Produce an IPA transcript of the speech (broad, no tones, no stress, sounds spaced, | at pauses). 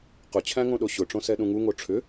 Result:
q ʊ t͡ɕʰ æ̃ ŋ õ ɗ o ɕ ʊ ʈ͡ʂ õ s ɛ ɗ ũ ŋ u ŋ o ʈ͡ʂʰ ʏ